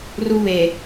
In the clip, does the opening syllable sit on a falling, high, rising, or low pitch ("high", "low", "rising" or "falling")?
high